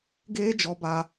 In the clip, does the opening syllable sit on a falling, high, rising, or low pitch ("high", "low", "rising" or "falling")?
high